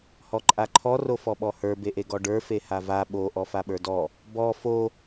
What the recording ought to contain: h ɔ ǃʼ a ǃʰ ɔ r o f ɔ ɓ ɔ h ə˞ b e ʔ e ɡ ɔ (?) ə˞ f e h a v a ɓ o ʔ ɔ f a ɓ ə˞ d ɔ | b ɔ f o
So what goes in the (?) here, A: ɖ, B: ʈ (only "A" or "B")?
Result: A